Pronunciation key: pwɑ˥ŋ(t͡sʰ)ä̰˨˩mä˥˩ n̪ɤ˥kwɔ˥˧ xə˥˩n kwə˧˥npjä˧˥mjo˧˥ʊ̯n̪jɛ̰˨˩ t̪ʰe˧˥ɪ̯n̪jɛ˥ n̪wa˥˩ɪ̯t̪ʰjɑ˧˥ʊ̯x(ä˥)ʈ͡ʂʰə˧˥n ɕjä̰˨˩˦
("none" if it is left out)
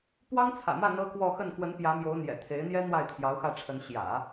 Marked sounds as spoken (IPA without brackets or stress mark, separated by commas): t͡sʰ, ä˥˩